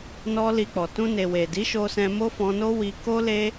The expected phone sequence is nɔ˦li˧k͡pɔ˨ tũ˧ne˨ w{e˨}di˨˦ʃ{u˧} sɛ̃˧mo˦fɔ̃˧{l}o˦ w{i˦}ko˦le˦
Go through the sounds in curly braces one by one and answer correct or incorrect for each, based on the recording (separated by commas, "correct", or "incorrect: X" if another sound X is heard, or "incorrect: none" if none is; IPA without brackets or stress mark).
correct, incorrect: o˧, incorrect: n, incorrect: i˧